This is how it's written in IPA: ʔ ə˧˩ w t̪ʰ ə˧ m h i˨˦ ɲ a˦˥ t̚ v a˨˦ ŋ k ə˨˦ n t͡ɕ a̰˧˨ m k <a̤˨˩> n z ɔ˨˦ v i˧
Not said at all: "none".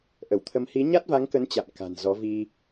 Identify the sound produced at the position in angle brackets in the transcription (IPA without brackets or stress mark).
a̤˨˩